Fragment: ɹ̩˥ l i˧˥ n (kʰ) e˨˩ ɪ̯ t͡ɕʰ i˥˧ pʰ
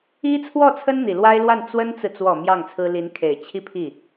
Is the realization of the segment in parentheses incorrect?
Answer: no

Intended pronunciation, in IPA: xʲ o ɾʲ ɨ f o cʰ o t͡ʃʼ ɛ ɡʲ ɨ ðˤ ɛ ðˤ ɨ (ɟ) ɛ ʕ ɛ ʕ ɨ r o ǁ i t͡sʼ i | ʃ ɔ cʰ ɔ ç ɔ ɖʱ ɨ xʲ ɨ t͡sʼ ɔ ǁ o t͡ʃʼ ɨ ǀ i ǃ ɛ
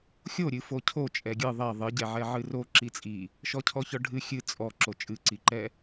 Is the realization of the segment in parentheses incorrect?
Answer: no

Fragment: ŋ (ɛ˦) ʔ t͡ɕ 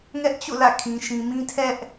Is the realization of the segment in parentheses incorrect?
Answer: no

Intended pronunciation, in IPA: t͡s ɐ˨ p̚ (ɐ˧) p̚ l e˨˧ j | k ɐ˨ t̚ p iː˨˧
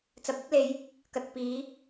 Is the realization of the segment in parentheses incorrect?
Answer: yes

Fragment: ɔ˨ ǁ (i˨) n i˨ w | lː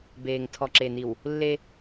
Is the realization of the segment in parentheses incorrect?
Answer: yes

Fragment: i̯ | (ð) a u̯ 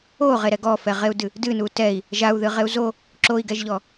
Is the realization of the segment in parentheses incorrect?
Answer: yes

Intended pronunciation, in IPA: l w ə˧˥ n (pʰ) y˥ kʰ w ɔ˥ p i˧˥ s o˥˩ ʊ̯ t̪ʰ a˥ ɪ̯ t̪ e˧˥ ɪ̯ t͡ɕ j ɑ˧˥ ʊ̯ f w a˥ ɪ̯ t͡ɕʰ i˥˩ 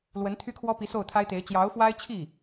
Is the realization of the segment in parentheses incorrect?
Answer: yes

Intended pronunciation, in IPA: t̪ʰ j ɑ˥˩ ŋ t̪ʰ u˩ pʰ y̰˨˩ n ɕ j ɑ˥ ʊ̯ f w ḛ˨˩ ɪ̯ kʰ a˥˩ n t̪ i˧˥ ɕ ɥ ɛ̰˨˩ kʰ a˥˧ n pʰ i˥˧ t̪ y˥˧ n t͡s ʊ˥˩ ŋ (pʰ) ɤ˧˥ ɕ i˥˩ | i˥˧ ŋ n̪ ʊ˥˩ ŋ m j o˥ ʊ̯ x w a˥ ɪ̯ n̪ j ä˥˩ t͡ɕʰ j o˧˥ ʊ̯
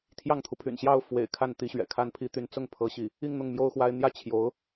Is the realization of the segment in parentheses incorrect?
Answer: no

